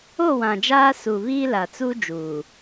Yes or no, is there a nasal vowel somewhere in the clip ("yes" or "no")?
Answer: yes